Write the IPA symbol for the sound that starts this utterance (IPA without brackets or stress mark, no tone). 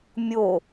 mʲ